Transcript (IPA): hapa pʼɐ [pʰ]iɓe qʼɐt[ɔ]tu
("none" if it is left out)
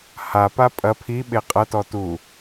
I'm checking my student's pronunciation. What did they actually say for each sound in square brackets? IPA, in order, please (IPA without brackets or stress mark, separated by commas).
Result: pʰ, ɔ